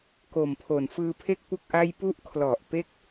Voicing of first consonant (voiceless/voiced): voiceless